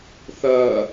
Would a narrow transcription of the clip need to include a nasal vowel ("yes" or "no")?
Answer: no